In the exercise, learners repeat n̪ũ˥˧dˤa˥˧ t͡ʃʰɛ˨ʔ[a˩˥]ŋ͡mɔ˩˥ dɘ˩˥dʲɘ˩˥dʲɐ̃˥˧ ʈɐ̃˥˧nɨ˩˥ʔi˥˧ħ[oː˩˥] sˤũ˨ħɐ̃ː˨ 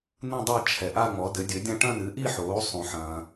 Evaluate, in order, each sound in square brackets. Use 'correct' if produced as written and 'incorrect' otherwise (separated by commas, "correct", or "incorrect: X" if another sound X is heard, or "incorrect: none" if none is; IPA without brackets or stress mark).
incorrect: a˥˧, correct